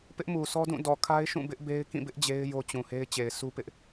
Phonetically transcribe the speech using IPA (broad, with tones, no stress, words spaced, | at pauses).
pɪ˦ʔmu˨sʰɔ˦dũ˦˨ dɔ˨ kʰa˦ɪ̯ʃũ˦˨ bɪ˦ʔbe˦ɪ̯ kĩ˦˨bɪ˦ʔ d͡ʑe˦ɪ̯jo˦t͡ɕũ˨he˦ɪ̯ t͡ɕe˨ɪ̯sʰu˦pɪ˦ʔ